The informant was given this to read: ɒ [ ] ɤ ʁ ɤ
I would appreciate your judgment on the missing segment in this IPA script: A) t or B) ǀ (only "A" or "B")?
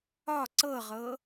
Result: B